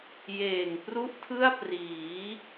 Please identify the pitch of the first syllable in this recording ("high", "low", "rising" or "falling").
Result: low